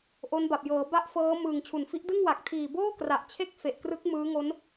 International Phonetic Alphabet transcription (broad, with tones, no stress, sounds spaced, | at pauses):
ʔ o˦˥ n b a˨˩ p̚ j ɤː˩˦ b a˥˩ ʔ f ɤː˦˥ m ɯ˨˩ ŋ t͡ɕʰ u˨˩ n f i˦˥ ʔ d ɯ˥˩ ŋ w a˨˩ k̚ tʰ iː˨˩ b oː˥˩ k r a˨˩ ʔ t͡ɕʰ e˥˩ k̚ f e˨˩ ʔ k r ɯ˦˥ k̚ m ɯː˦˥ ŋ o˦˥ n